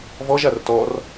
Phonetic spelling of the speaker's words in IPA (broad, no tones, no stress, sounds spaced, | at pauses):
v ɔ ʒ a r t ɔ r